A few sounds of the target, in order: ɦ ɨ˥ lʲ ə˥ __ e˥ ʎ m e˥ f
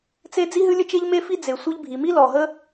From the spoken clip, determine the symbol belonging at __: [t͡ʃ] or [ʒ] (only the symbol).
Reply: t͡ʃ